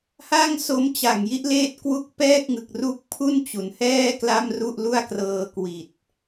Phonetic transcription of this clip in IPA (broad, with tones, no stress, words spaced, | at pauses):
ha˥˩ŋso˦˥m t͡ɕa˨˩ŋji˦˥ʔleː˦˥t̚ kwu˦˥k̚pɛː˥˩k̚ŋɯ˨˩k̚ru˦˥k̚ pʰu˥˩nt͡ɕu˩˦nhɛː˥˩ kla˥˩mru˥˩ʔlu˥˩a̯krɤː˧ kwi˨˩t̚